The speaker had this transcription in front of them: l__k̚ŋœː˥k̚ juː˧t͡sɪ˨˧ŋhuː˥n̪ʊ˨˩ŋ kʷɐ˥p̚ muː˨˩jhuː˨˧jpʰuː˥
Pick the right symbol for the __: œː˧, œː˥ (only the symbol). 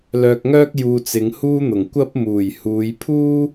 œː˧